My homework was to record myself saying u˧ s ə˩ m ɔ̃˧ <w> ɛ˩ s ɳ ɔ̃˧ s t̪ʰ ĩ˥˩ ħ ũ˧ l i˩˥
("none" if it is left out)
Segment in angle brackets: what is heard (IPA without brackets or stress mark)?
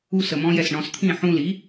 j